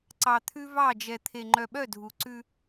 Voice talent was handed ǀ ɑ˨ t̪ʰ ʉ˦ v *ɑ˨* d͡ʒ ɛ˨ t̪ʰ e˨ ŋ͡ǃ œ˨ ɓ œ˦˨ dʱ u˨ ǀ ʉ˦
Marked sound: incorrect: ɑ˦˨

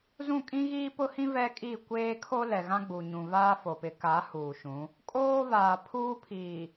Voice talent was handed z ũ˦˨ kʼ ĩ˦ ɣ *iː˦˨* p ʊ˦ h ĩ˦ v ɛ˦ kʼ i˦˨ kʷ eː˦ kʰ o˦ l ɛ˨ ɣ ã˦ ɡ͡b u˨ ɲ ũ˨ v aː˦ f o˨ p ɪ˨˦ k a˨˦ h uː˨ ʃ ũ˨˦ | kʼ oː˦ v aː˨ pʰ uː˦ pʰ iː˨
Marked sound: incorrect: iː˦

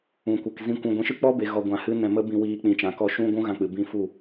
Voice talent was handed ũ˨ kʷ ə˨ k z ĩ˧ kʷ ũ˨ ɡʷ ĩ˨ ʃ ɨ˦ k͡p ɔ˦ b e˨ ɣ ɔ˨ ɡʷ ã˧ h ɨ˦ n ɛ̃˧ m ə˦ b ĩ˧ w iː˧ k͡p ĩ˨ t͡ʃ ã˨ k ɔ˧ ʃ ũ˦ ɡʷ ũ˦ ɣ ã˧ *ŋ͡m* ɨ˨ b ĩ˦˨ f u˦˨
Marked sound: incorrect: k͡p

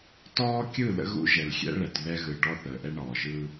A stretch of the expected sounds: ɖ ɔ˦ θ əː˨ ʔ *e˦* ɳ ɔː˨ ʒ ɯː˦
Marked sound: incorrect: ɛ˦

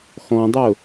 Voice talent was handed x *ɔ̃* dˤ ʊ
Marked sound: correct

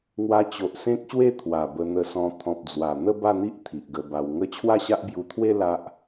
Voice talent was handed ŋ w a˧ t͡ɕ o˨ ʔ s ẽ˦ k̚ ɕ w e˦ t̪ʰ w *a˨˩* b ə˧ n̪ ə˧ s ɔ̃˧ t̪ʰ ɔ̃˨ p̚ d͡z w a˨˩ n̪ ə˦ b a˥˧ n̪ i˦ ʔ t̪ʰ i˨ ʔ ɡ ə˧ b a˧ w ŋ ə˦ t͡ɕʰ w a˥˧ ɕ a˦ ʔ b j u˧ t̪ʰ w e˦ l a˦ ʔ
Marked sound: correct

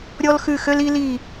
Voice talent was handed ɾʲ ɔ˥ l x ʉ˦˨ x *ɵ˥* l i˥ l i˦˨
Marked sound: incorrect: ø˥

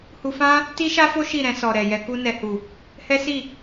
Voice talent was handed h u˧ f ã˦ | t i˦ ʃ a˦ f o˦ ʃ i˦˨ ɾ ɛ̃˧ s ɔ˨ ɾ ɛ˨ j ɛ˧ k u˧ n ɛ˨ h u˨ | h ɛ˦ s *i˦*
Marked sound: incorrect: i˦˨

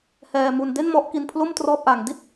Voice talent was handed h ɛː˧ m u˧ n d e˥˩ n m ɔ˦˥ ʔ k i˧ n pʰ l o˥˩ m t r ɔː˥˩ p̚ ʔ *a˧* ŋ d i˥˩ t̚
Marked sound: correct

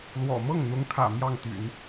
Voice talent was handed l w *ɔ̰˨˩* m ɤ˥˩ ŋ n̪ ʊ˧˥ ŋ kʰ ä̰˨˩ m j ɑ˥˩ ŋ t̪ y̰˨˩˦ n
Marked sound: correct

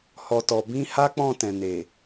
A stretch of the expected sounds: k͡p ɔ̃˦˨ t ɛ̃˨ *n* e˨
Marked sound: correct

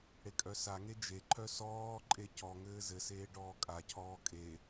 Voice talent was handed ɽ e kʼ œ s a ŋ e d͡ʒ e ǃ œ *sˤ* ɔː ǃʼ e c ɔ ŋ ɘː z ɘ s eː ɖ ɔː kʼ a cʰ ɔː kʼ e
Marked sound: incorrect: s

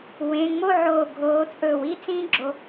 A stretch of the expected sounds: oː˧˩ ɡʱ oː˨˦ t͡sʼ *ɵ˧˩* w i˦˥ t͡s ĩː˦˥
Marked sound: correct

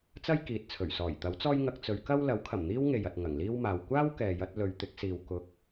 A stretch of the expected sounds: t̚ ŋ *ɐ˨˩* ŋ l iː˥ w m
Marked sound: correct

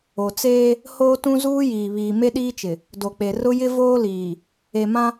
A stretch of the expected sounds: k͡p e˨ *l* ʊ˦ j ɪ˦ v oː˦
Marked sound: incorrect: r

